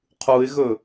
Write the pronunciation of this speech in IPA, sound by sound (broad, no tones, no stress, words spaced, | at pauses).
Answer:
qʰuɪ̯ɣɵ